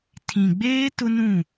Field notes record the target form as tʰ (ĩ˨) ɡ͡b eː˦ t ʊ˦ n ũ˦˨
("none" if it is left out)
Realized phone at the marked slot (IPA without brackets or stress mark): ĩ˨